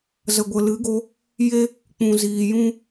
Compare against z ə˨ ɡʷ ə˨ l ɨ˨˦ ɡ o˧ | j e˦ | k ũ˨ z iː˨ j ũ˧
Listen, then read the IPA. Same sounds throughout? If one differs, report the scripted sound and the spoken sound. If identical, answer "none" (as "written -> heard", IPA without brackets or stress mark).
k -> k͡p